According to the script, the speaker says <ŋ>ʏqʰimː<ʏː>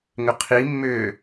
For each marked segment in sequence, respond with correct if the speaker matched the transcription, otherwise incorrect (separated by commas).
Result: correct, correct